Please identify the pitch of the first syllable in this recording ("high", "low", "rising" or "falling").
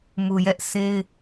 low